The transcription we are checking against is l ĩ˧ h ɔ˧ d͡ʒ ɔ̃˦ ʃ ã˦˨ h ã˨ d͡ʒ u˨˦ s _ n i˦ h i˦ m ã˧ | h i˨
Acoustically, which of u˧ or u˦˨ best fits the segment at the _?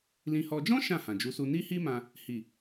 u˧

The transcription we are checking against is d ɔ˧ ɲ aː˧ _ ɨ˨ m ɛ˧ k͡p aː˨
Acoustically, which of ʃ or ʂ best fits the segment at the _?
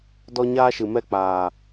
ʃ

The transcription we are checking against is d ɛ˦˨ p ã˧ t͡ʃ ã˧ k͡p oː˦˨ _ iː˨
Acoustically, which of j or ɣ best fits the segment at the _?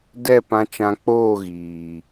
ɣ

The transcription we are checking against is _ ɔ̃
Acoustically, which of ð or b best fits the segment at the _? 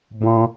b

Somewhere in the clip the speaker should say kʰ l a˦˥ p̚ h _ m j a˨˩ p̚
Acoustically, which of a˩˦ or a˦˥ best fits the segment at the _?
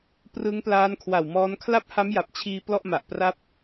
a˦˥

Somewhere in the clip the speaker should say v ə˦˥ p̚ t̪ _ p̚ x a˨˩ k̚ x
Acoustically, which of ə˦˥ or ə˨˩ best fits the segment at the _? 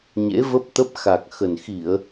ə˦˥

